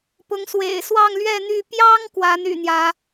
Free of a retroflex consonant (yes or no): yes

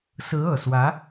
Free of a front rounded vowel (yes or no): yes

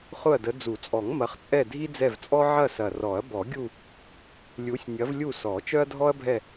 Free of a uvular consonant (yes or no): no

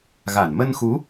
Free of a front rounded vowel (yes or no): yes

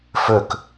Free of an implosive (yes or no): yes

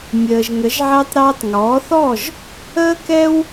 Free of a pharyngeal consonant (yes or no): no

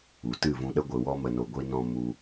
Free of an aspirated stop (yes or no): yes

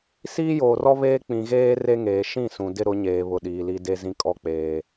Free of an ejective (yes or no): no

